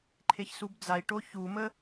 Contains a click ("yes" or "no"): yes